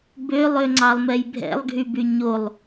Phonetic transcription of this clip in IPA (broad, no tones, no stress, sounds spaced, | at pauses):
b ø lˠ ø ŋ͡ǀ ɑ lˠ m ɛ j bʱ ɛ̰ lˠ ɡʱ y b y ɲ o lˠ